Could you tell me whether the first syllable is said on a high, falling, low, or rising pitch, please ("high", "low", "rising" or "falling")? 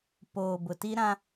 low